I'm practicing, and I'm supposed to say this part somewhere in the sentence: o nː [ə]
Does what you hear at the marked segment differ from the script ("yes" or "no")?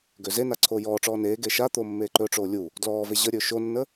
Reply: no